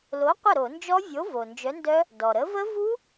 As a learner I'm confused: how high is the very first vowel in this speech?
mid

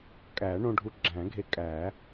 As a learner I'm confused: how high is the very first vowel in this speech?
low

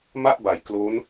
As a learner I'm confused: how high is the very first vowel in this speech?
low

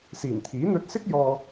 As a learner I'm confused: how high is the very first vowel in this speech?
high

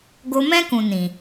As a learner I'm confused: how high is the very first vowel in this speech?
mid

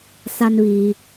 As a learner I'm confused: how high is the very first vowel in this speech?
low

